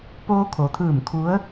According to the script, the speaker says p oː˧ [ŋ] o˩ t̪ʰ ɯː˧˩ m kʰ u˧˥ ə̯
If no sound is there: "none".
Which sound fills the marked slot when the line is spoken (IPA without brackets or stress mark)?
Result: kʰ